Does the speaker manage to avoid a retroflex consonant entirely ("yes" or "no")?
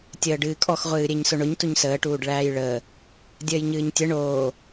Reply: no